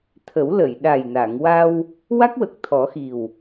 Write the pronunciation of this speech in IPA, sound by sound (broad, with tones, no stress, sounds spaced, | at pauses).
t̪ʰ ə˨˩˦ w l ə˨˩˨ j ɗ a˨˩ j n a˨˩˨ ŋ w a˧ w | w a˦˥ k̚ w ə˨˩ k̚ t̪ʰ ɔ˨˩˦ x i˨˩ w